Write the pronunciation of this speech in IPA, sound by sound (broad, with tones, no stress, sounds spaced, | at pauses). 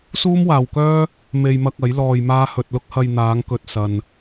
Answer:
s uː˥ m w aː˨ w k œː˥ | m e˧ j m ɐ˧ k̚ ɐ˨˥ j l ɔː˧ j m aː˥ h ɵ˧ t̚ l ʊ˥ k̚ h ɐ˧ j n̪ aː˨˧ ŋ k ɵ˨ t̚ s ɐ˨ n